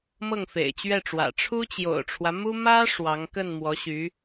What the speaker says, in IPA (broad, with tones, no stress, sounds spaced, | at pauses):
m ɤ˥˩ ŋ f ḛ˨˩ ɪ̯ t͡ɕ ɥ ɛ˥˩ ʈ͡ʂ w ä̰˨˩ ʈ͡ʂʰ u˥ t͡ɕ j o̰˨˩ ʊ̯ ʈ͡ʂʰ w ä˦ m u˥ m ä˥ ʂ w ɑ˧˥ ŋ k ə˥˩ n m w ɔ˧˥ ɕ y˧˥